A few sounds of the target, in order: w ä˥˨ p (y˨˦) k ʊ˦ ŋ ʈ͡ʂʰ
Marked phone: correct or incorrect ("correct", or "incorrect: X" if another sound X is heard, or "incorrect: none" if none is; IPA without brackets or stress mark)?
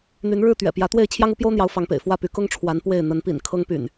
correct